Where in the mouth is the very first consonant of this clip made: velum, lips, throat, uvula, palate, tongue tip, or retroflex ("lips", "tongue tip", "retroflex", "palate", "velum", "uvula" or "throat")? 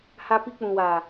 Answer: throat